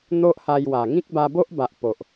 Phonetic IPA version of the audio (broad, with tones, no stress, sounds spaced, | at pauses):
n̪ o˦ ʔ h a˧ j w a˨˩ ŋ ĩ˦ k̚ b a˧ b o˦ ʔ b a˨ ʔ p o˨ ʔ